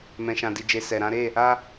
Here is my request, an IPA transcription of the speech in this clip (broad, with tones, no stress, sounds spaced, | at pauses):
m ɛ̃˨ ʃ ã˨ d i˨ d͡ʒ e˨ s ɛ˨ ɾ ã˨˦ ɾ e˦˨ | a˦